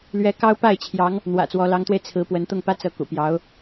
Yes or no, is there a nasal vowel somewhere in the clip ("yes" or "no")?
no